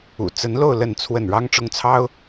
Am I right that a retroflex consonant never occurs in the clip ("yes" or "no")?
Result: no